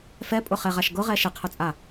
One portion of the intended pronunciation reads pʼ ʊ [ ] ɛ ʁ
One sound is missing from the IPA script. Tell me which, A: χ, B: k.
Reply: A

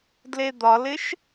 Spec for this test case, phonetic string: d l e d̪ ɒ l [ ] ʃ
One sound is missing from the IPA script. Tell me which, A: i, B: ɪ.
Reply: B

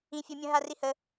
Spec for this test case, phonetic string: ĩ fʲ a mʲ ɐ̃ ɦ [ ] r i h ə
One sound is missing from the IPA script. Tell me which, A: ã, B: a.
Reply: B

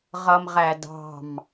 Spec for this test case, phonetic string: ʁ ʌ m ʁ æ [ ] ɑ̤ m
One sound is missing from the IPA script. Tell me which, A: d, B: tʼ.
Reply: A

